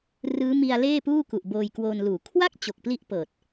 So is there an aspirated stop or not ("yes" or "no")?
yes